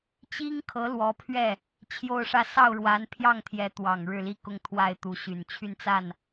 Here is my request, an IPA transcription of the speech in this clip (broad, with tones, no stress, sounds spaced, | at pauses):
t͡ɕ i˥ ŋ kʰ ɤ˧˥ l w ɔ˧˥ pʰ ɥ ɛ˥˩ | t͡ɕʰ j o˥˧ ʊ̯ ʂ ä˥˧ s ɑ˥˩ ʊ̯ ɻ w a˧˥ n pʰ j ɑ˥˩ ŋ t̪ʰ j ɛ˧˥ t̪ w ɑ˨˩ ŋ ɻ ɻ̩˥˩ l i˥ k ʊ˥˧ ŋ t̪ʰ w a˥˩ ɪ̯ t̪ u˧˥ ɕ y˨˩ n t͡ɕʰ y˥˧ n t͡s a˥˩ n